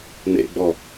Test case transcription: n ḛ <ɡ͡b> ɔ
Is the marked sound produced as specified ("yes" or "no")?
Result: yes